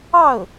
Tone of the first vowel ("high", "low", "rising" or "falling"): falling